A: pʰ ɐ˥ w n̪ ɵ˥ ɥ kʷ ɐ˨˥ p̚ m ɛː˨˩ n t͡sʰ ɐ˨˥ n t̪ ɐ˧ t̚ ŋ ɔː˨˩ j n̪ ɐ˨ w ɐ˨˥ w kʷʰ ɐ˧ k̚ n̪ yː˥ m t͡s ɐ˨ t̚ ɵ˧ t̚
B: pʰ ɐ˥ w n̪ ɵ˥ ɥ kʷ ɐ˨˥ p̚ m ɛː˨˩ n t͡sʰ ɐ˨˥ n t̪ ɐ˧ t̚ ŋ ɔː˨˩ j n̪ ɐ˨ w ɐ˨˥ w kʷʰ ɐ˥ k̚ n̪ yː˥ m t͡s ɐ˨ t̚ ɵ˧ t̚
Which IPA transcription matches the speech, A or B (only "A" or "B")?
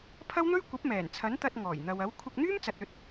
A